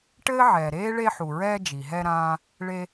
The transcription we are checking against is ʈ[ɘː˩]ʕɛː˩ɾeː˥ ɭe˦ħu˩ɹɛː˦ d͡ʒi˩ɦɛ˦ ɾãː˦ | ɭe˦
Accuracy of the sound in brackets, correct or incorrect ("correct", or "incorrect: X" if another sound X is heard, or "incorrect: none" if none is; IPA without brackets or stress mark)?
incorrect: ɘː˥